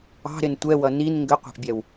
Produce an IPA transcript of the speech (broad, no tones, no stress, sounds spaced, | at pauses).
ɑ̤ ɾ ɪ n tʷ ɛ w ʌ n i n ŋ ɡ ə qʷ æ̤ ʔ bʲ ɛ w